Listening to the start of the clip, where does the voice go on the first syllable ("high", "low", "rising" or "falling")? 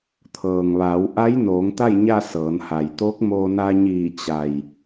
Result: low